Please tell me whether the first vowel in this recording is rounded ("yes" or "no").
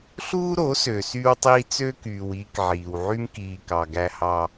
yes